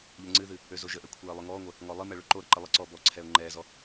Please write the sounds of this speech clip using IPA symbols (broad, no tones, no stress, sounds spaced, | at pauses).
ʎ ə ŋ͡ǀ ɨ ð ɨ | ø z o ʒ ə ʔ ɛ kʷʰ ɛː lˠ ø ŋ ɔː ŋʷ ɛ | ŋ ɔ lˠ ɨ m ɛ ɭ ø ǃ o ɾ ə ǃ ɨ lˠ ə ǀ ɔː b ɔ ǀʰ ɛ ʊ̯ ŋ͡ǃ ɛː z ɔ